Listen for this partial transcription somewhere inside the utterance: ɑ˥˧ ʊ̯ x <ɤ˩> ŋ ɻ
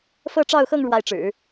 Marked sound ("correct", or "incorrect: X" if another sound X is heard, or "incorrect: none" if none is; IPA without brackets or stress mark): incorrect: ɤ˥˧